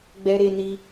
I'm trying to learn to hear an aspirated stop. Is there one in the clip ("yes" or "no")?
no